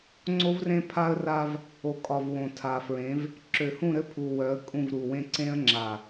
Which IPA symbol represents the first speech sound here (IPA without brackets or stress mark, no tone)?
ŋ͡ǀ